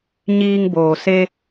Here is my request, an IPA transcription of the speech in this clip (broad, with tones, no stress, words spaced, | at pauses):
ɲiː˧ŋboː˩se˧